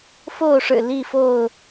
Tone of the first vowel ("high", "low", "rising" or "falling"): falling